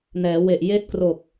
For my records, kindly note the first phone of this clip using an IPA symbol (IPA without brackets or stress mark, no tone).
n